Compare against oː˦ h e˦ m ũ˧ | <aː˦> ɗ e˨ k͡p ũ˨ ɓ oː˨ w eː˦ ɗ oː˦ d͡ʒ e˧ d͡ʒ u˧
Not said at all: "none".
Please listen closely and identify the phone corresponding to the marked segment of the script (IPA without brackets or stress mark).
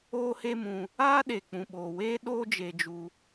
aː˦